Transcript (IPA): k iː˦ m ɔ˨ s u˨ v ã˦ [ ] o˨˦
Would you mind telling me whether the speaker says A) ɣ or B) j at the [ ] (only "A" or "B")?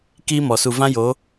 B